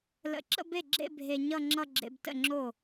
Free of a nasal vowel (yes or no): yes